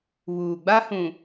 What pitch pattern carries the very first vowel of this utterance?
low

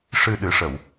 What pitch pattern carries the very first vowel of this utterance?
low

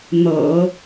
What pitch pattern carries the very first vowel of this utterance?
low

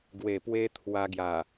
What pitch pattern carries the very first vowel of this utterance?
low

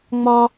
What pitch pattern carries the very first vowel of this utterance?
high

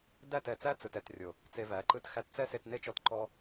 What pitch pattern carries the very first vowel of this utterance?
falling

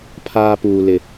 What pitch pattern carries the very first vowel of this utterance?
high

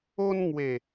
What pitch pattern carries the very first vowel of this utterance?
high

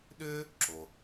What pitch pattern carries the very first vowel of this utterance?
high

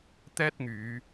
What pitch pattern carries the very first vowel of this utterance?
high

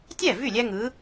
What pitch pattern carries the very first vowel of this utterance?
falling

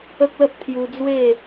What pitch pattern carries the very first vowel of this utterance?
high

